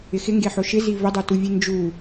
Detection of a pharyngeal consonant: present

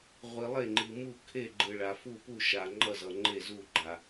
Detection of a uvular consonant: present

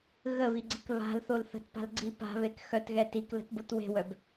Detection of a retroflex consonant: absent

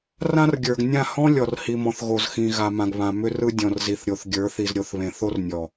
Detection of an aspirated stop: absent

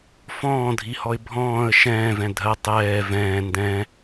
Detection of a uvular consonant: absent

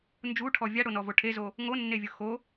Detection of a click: absent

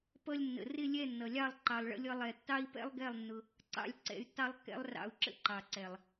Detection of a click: present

